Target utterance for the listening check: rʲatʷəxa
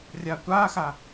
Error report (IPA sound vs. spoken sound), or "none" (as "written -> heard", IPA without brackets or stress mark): ə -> a